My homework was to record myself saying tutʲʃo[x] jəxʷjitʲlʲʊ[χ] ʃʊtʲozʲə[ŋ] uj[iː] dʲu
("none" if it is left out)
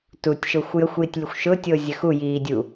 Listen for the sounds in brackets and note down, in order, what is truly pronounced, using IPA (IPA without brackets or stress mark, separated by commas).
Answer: xʷ, xʷ, x, iː